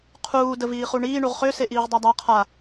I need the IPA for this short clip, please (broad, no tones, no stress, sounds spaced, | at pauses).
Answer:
qʰ uː d ə v iː χ u ɳ iː ɳ u ʁ χ ø s e ʔ iː ʁ dˤ a dˤ a qʰ a